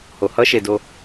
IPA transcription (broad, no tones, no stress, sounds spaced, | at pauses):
h o h ʌ ʃ e d o